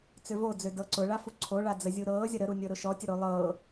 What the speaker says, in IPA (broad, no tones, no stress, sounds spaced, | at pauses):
t͡s ø v o d͡z ø d ɤ ǀ ʊ ɭ a f u ǀʰ o ɭ a d͡z ə zʲ u ɾ ɤː zʲ ʌ ɾ ə ɾ u nʲ ɤ ɾ ʊ ʃ ɔ tʲ ə ɾ o lˠ ɤ